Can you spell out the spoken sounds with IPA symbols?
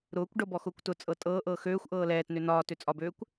ɾ ʊː kʷ ɖ ɤ b ɔ x ʊː kʷ t ʊ t͡sʼ ɤ tʼ ɤː ʔ ɤː x øː xʷ ʔ ɤː l ɛː t n ø n ɒː t ø t͡sʼ ɒ b øː kʷ

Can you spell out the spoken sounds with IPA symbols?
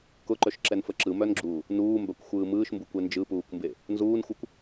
k ʊ ǃ œ ʃ ǁ ɛ n f ə ǁ ɯ m œ n ɡ͡ǁ uː | n uː m b œ kʷ xʷ ɯː m ɯː ʃ m b u kʷ e n d͡ʒ ɯ p uː kʷ m b e | n z uː n xʷ ɯ kʷ

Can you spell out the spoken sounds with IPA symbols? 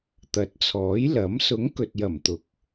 t̪ ɐ˨˥ t̚ t͡sʰ ɔː˨˥ j l ɐ˨˥ m s ʊ˨˥ ŋ k ɵ˨ t̚ j ɐ˨˩ m t̪ ʊ˨ k̚

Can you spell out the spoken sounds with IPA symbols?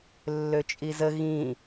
lː ø t͡ʃʼ i z ə ɣ ĩ

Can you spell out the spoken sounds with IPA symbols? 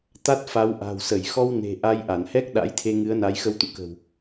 t̪ a˦˥ t̚ f a˨˦ w ʔ a̤˨˩ w s ə˧˩ j x ɔ˧ w n e̤˨˩ ʔ a˧ j ʔ a˧˩ n h ɛ˦˥ k̚ ɗ a̰˧˥ j t̪ʰ e˧ ŋ ɨ˨˦ ə̯ n a˨˦ j x ə˧ w t̪ ṵ˧˨ k ə̤˨˩ w

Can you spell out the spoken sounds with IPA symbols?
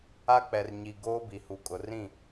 a˦ k͡p ɛ˨ r ɲ i˨ ɡ oː˦ b i˨ h u˨ kʼ ʊ˨ r ĩ˦˨

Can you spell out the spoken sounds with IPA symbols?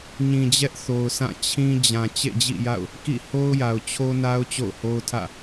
ɲ ĩ˨ d͡ʑ ɛ˦ ʔ θ o˨ ʊ̯ s ã˦˨ t͡ɕʰ ĩ˦ d͡ʑ ã˨ t͡ɕ ḛ˦˨ d͡ʑ ḭ˦˨ j a̰˦˨ ʊ̯ | k ḭ˦˨ h o˦ ʊ̯ j a˨ ʊ̯ t͡ɕʰ o˦ n a˦ ʊ̯ t͡ɕ o̰˦˨ ʊ̯ h o˦ ʊ̯ tʰ ä̰˦˨

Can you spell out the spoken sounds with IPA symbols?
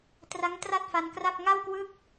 t r a˦˥ ŋ t r a˥˩ t̚ f a˧ n k r a˥˩ p̚ ŋ a˥˩ w k w ɯ˥˩ k̚

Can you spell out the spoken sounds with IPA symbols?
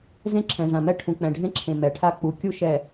z ẽ˦ ǁʰ ɛ̃˨ z ã˨ m ɛ˦ ʈʰ ũ˨ k͡p ɛ̃˨ ɖʱ ẽ˦ ǁʰ ẽ˨ m ɛ˨ ʈʰ a˦ k͡p u˨ kʲ u˦ ʃ ɛ˨

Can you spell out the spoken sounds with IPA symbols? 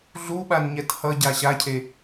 ɮ u ɓ a n ɲ ɛ t h ʌ ɟ a ɕ a cʰ e

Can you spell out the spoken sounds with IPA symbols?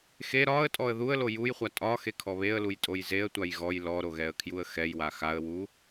x e ɾ ɒ ə̯ tʼ ɔ ə̯ ð u ə̯ l o j u j χʷ a tʼ ɒ x e kʰ ɔ β e ə̯ l u j tʼ o j z e ə̯ tʷ a j ɣ ɔ j l ɔ ɾ o ɣ ɛ ə̯ kʰ j u ə̯ x ɛ j w a x a ə̯ w u

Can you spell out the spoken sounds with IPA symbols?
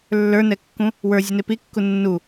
lː ə˞ n ɛ kː ũ | w ə˞ zʲ u n e p i kː u nː u

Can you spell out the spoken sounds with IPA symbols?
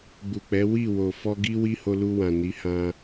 ɡ͡b u˨ k͡p ɛ˨˦ w i˦˨ w o˨ f ɔ˧ ɡ i˦ w i˦ h o˧ l u˧ w ã˨ n i˨˦ h ã˧

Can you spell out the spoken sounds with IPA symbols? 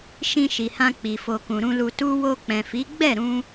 ʃ ĩ˧ ʃ i˨ h ã˧ k͡p i˨ f o˨ k ũ˨ ɾ ũ˧ l u˨ t u˧ w o˧ k͡p ɛ̃˨ f i˨˦ ɡ͡b ɛ˦˨ ɾ ũ˧

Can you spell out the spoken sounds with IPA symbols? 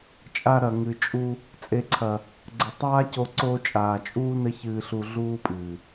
t͡ʃʼ a˧ ɾ ɐ˨ ŋ ɨ˨ t͡ʃʼ u˧ | t͡sʼ e˨ ǀʰ ɐ˨ | ɡ͡ǀ ɘ˨ tˤ aː˦ c o˧ ǀ oː˧ t͡ʃʼ aː˨ t͡ʃʼ uː˦ n ɘ˦ ç ɨː˧ ɬ u˧ ɮ uː˦ pʼ ɨː˨

